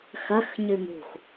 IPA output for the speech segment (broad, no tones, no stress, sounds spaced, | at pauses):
x ɐ x ɲ ʉ m ṳ x